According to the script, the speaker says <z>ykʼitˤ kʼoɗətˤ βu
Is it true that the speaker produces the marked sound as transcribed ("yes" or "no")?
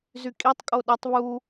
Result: yes